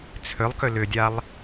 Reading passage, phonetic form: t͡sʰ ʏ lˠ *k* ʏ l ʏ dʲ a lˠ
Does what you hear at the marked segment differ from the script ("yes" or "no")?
no